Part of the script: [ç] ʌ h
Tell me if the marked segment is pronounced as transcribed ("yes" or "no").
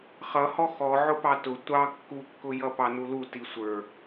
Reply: no